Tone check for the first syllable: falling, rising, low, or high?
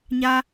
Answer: high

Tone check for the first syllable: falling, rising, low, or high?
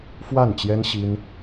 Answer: falling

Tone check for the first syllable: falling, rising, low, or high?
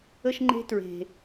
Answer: high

